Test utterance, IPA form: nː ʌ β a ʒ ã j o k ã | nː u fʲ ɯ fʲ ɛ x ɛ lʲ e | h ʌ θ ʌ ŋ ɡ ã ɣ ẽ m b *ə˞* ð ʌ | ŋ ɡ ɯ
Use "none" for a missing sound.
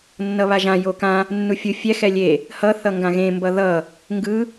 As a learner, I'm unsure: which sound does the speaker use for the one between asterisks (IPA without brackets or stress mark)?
ʌ